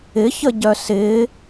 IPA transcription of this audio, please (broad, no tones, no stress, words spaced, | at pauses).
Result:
ɪçəɟœ sɪ